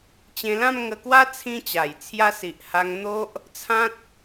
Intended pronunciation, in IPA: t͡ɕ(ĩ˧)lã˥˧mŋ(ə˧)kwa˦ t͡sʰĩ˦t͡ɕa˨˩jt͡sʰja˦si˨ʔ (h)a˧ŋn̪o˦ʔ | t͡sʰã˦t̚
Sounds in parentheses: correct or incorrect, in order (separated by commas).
incorrect, correct, correct